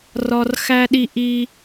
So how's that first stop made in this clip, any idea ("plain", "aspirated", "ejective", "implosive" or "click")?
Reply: implosive